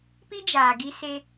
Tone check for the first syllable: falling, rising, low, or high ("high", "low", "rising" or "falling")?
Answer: high